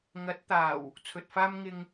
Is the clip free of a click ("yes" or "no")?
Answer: yes